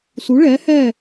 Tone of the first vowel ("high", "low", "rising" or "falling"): rising